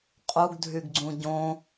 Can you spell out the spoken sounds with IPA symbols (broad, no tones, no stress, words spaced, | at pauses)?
qʼuɡdʱyɡɡ͡ǀũ ɟõ